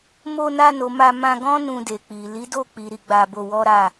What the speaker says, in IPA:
m o˧ n a˧ n o˨ m a˧ m ã˧ ɡ ɔ̃˦ n ũ˧ d e˨ k͡p i˨ l i˨˦ d o˦˨ k͡p i˨ ɾ i˧ ɡ͡b a˧ b o˧ w ɔ˦ ɾ a˦˨

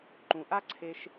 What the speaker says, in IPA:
ǃ ũ˨ ʔ a˦ ǀʰ e˦ ʃ

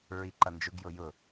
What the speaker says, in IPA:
ɹ i ǃ ʌ n d͡ʒ ʊ ɡ j ʊ j ʊ

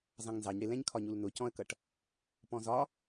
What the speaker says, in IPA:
z ɑ̃ ŋ n z ɑ ɲ ɽ ɪ l ɛ̃ ɲ kʰ ɒ ɲ u l n ʊ c ɔ̃ ə̯ k ʌ ʈ | p ɔ̃ z ɒ

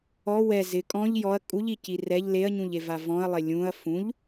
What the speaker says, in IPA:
ɔ w ɛ z ɪ kʼ ɔ̃ ʎ j ɔ ɐ̯ kʼ u ʎ i c i r ɛ ʎ l e ɐ̯ ɲ ũ ʎ e v a v ɔ̃ ɐ̯ lˠ e lʲ ũ ɐ̯ f ũ ʎ

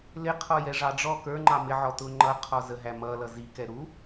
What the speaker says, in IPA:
l ɪ qʰ ɔ j ɛ ʐ ɑ ɖ͡ʐ ɔ k ə˞ ŋ͡ǃ ɑ m ɪ ʕ ɔ t ʊ ŋ͡ǃ ʌ qʰ ɔ z ə ɦ æ m ʌ l ʌ z i k ɛ ɾ u

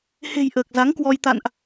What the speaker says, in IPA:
h e̤˨˩ j ʔ əː˨˩ k̚ z a˨˦ ŋ k w ɔ˧ j t̪ a̰˧˨ n ʔ

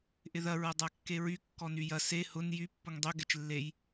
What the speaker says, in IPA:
ʔ ɪ ð ɐ ɹ ɐ dˤ a kː e ɹ y kː ɔ n y j ɐ s e h ʊ n j y pː ʊ ŋ dˤ ø ɡ ɛ t͡ʃ lː e j

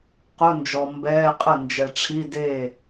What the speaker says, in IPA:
q ʊ˧˥˧ n d͡ʒ ɔ˨ m b ɛː˧˥˧ qʼ ə˥˩ n d͡ʒ ɛ˨ ʈ͡ʂʰ i˧˥˧ d eː˥˩

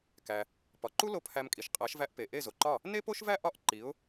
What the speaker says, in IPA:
k æ˩ | p ɒ˩ ǃ u˥ l o˥˩ pʰ æ˧ m kʼ i˩ ʃ qʼ æ˩˥ ʃ v æ˧ ʔ p e˩ ʔ e˥˩ z o˩ ǃ ɒ˥˩ | n e˥ p o˥ ʃ v æ˥ ʔ ɒ˥˩ ʔ ǃ i˩˥ ʊ̯

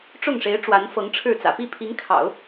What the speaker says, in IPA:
ʈ͡ʂ ʊ˥˩ ŋ ʂ e˧˥ ɪ̯ ʈ͡ʂ w a˧˥ n f ɤ˧˥ ŋ ʈ͡ʂʰ ɻ̩˥˩ t͡s ä̰˨˩ p i˥˩ pʰ i˧˥ ŋ kʰ ɑ̰˨˩˦ ʊ̯

